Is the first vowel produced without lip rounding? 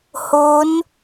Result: no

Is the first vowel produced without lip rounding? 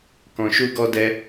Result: no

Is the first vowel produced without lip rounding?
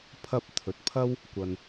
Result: yes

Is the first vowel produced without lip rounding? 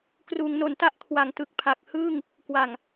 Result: no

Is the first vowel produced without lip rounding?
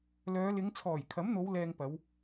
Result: no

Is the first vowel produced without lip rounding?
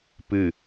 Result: yes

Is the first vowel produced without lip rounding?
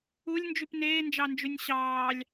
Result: no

